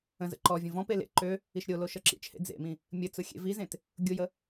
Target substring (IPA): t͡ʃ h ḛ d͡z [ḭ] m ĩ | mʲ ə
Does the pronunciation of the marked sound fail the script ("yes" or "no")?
yes